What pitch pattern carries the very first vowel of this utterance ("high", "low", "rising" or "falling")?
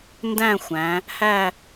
falling